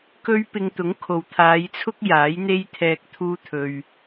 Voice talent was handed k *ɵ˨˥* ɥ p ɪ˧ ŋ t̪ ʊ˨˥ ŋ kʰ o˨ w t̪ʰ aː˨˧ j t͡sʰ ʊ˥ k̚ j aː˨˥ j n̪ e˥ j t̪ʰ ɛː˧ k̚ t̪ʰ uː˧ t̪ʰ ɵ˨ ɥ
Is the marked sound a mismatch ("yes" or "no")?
yes